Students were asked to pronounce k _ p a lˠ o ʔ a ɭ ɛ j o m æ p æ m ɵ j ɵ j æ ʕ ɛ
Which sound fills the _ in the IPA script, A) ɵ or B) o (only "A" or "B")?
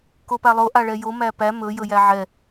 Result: B